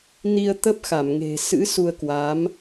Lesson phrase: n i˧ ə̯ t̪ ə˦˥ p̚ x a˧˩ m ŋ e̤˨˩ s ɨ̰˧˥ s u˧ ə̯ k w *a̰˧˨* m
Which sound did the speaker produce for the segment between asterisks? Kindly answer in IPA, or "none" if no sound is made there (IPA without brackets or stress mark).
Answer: a˨˦